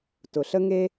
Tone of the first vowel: low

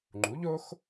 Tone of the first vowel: rising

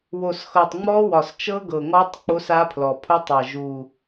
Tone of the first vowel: low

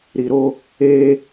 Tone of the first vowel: low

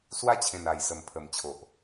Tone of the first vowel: high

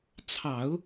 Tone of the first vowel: low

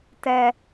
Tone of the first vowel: high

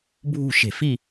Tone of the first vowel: falling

